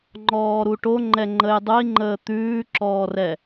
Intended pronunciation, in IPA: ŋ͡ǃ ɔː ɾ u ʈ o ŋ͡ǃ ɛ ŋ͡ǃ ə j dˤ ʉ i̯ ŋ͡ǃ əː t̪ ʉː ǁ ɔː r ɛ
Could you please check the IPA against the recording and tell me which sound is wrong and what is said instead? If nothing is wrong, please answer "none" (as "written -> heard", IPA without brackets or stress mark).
none